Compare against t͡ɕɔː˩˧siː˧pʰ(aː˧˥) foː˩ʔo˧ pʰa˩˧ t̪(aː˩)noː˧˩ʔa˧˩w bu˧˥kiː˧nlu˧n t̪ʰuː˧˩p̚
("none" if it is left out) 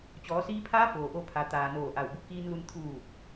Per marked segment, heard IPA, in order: aː˧˥, aː˩

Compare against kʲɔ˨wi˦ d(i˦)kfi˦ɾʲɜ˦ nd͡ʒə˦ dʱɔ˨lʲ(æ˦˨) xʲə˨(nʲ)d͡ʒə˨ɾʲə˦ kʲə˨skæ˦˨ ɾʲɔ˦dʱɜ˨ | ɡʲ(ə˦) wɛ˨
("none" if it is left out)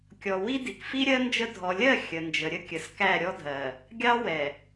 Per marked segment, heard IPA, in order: i˨, ɜ˦˨, n, ɑ˦

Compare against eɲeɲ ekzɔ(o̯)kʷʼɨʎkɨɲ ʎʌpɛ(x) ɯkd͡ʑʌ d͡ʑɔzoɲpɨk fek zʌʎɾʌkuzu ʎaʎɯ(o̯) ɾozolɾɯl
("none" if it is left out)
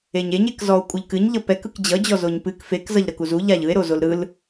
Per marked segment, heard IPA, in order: o̯, k, e̯

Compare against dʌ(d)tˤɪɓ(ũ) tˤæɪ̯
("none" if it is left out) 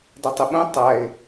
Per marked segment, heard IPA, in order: none, ũ

